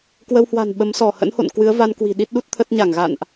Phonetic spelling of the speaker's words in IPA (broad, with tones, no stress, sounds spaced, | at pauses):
k w ə˧ w h w a̤˨˩ n ɓ ə˨˦ m s ɔ˧˩ h ə̰˧˥ n h o̰˧˨ n k w ɨ˨˦ ə̯ v a˧ n k w i̤˨˩ ɗ i˦˥ t̚ ɗ u˦˥ t̚ t̪ʰ ə˦˥ t̚ ɲ a˧˩ ŋ ɣ a̰˧˨ n ʔ